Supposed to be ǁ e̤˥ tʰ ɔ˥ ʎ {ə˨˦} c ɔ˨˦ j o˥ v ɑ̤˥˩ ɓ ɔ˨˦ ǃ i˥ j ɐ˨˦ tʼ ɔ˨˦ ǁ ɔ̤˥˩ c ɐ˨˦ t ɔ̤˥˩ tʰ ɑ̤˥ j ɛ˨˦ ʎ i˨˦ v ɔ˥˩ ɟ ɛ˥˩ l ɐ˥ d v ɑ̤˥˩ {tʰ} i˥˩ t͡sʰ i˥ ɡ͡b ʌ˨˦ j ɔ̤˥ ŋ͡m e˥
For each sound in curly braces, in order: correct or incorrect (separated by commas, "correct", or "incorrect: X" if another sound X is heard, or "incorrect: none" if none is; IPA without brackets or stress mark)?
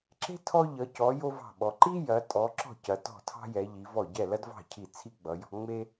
incorrect: ʌ˨˦, incorrect: cʰ